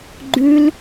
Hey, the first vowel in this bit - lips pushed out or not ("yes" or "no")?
yes